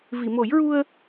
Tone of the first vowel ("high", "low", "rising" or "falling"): low